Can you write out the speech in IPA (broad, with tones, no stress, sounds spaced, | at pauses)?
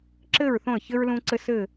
ǁ ɘ˦˨ ɹ θ õ˦˨ ə̯ ç ɘ˦ ɹ l ũ˦ ǀ ɘ˦ s ɘ˦˨